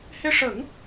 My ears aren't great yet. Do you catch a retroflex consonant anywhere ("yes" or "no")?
yes